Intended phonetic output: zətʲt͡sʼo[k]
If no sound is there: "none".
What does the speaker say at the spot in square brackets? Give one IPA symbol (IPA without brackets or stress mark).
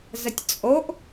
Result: ʔ